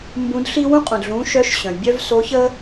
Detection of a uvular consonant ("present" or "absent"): present